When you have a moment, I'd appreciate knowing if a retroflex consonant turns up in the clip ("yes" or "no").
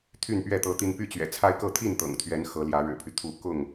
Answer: yes